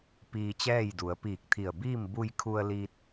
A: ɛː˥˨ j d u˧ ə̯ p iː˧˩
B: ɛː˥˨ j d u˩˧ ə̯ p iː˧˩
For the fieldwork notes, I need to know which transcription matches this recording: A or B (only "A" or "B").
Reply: B